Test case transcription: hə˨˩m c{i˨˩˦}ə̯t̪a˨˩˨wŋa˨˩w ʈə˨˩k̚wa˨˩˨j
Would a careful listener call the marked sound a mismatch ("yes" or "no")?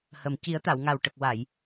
no